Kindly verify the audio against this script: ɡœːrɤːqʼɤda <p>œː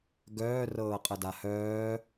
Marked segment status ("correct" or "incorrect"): incorrect